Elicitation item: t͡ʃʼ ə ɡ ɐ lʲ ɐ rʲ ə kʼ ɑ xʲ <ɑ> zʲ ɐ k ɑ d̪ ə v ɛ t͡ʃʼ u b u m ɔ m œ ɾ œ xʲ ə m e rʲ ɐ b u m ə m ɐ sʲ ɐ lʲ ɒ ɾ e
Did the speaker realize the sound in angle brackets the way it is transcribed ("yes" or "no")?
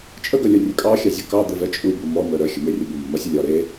yes